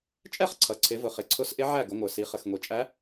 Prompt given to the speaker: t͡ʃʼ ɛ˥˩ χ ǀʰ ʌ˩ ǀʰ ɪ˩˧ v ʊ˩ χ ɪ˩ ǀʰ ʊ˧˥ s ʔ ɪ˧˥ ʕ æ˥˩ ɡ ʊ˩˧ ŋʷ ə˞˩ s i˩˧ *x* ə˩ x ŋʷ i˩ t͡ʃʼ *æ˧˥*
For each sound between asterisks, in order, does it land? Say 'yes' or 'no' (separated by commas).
no, yes